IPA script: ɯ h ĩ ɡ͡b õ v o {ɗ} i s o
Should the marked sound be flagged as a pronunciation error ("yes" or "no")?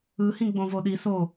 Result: no